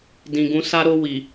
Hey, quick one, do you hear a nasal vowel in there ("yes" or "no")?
yes